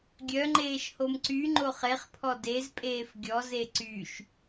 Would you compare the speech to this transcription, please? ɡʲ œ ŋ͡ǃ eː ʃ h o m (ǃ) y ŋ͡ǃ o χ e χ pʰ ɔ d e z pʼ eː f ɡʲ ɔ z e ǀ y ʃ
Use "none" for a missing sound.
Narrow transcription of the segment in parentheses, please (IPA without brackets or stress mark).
ǀ